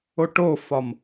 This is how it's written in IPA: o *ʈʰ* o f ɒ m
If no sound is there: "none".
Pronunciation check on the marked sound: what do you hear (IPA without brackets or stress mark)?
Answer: ʈ